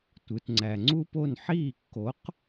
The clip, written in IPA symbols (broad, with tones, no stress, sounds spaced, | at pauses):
tʷ ɯ˩ t ŋ͡ǀ æ˩ ŋ͡ǀ u˥ p o˥˩ n ħ iː˥˩ kː o˩˥ q